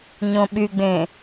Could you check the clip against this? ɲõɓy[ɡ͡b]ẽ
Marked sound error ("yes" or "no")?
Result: no